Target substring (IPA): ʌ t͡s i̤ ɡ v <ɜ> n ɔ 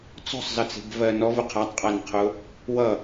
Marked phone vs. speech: correct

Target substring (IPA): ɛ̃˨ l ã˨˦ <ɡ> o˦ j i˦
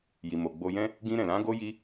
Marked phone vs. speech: correct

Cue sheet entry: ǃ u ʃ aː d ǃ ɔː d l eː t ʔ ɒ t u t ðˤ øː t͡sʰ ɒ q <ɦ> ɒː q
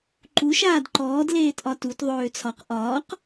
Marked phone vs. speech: incorrect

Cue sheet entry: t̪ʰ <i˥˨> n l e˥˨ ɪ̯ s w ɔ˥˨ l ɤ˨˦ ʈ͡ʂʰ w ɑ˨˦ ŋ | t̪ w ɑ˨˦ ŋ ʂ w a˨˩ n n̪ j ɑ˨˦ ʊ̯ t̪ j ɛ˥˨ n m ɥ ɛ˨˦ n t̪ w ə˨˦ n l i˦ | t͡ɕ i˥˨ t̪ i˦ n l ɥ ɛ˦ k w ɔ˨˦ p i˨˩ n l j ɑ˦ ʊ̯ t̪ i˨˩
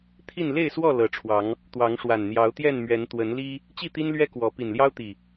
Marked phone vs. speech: correct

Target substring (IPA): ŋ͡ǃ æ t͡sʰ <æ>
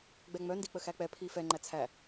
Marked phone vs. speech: correct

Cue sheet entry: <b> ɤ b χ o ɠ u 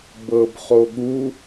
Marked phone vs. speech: correct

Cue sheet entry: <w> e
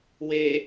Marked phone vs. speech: correct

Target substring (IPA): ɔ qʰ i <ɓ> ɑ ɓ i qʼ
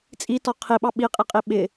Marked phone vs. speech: correct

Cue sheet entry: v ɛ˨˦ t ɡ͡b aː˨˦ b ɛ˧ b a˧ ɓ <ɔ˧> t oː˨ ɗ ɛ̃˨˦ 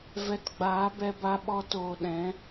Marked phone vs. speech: correct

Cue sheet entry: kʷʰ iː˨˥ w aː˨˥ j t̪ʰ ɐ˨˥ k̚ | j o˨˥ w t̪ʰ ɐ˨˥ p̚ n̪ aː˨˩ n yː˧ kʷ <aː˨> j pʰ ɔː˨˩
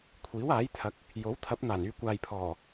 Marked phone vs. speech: correct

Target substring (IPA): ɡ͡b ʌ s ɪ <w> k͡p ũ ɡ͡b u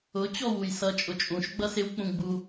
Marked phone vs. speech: correct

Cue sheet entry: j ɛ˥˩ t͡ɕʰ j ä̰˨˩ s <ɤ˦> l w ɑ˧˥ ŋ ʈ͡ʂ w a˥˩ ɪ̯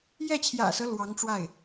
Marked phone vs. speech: correct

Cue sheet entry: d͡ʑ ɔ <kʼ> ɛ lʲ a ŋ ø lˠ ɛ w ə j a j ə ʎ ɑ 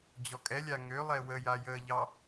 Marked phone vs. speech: correct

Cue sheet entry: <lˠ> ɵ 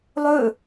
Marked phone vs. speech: correct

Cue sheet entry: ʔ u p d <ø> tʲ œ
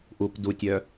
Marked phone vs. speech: incorrect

